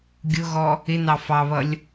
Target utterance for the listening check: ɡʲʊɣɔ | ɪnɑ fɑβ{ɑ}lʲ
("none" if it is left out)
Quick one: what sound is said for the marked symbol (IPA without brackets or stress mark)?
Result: ʌ